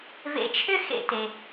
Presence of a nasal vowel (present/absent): absent